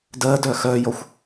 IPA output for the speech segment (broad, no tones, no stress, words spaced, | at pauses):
dɜdœ xœjɔxʷ